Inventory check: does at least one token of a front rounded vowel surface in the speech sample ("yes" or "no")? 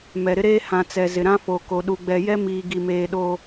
no